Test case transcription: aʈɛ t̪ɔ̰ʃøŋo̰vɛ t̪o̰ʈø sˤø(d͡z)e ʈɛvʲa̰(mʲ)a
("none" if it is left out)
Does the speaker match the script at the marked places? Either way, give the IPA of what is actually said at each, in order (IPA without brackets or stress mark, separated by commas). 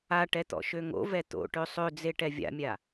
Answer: d͡z, mʲ